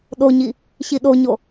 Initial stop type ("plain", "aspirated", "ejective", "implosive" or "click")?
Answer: implosive